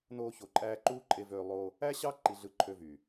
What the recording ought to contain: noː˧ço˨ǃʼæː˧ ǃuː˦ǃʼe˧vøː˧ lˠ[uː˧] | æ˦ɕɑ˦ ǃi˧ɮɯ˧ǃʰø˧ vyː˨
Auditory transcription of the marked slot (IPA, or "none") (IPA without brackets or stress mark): oː˧